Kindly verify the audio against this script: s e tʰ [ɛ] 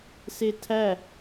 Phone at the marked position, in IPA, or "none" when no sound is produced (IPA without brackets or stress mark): æ